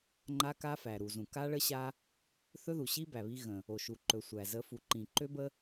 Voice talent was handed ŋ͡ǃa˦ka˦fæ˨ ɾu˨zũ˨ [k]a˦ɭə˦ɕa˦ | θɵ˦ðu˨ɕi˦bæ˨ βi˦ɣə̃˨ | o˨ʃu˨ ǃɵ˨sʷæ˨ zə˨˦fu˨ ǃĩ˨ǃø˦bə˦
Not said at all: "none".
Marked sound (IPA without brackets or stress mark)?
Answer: k